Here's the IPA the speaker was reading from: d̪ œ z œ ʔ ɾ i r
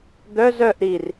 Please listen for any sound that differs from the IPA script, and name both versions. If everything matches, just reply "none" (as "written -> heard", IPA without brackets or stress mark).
none